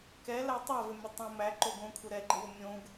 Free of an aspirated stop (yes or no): no